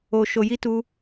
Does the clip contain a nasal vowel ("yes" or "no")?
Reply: no